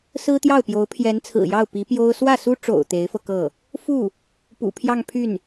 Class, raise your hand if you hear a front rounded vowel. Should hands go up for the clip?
yes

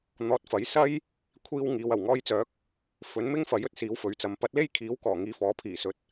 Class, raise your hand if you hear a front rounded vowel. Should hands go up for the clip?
yes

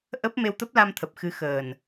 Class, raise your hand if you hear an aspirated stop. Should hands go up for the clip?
yes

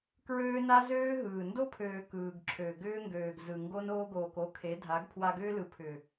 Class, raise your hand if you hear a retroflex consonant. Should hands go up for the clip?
no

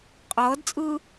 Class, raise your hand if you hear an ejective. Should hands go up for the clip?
yes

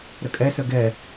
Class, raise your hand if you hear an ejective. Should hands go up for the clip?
yes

